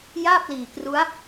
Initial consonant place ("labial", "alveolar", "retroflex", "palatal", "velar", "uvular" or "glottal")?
palatal